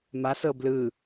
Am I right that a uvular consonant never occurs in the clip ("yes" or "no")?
yes